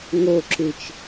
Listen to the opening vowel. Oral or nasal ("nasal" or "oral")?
oral